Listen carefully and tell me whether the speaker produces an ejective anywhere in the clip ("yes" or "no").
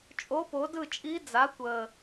yes